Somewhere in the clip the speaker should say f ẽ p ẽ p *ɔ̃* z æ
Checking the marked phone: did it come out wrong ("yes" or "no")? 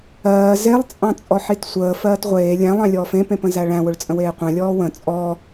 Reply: yes